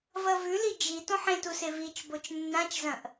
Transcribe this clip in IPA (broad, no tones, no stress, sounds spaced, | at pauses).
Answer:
v ɐ v ʉ l i d͡ʒ i t õ ħ ẽ t u s e v i t͡ʃ b o t͡ʃ nː ã t͡ʃ z ɐ̃ ʔ